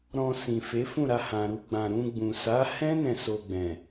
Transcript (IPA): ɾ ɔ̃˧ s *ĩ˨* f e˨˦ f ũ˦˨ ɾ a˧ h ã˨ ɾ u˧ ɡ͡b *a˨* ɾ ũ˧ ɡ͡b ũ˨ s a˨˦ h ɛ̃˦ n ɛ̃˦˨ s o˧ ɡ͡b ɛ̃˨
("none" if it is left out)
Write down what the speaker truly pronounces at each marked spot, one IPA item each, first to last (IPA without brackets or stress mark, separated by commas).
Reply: ĩ˨, ã˨